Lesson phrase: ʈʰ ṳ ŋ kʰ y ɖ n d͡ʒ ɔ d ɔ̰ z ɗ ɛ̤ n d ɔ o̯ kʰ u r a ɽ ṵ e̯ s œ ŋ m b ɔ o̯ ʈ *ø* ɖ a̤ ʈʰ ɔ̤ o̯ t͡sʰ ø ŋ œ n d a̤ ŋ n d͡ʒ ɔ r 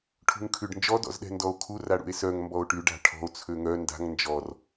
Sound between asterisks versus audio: incorrect: y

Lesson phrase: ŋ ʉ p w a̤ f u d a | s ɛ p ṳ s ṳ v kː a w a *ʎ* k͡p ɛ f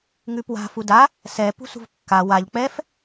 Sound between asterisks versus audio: correct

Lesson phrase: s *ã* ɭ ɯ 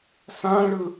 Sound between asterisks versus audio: correct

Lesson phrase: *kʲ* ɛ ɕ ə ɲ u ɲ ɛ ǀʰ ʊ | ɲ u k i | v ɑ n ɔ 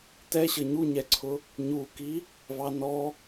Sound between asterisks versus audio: incorrect: t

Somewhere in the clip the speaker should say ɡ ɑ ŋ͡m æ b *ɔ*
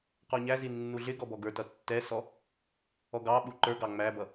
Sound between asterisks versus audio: incorrect: ʌ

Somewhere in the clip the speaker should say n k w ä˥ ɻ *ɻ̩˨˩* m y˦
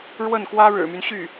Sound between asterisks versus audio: correct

